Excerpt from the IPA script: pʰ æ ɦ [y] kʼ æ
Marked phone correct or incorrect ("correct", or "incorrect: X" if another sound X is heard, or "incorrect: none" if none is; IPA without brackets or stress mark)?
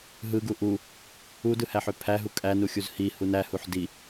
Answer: incorrect: u